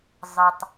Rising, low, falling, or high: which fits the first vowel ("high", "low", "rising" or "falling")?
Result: low